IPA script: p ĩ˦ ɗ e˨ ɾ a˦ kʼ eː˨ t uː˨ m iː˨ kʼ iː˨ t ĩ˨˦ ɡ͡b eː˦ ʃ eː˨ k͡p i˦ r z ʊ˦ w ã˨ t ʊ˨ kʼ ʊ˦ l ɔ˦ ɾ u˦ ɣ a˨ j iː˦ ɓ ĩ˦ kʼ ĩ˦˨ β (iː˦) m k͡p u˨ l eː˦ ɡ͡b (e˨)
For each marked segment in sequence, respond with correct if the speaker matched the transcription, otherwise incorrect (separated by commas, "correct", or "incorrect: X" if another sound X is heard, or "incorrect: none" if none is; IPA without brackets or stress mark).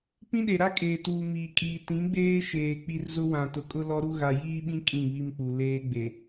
incorrect: i˦, correct